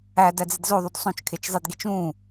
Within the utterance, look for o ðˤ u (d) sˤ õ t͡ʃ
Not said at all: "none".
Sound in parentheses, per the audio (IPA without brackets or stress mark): d